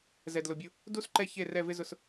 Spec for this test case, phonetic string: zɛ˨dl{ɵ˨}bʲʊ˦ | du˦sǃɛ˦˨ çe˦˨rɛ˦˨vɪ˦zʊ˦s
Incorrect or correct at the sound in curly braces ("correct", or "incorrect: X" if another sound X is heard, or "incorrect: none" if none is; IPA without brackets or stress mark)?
incorrect: ʊ˨